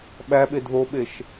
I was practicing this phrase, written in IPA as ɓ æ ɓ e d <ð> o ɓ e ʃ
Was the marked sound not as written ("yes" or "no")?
no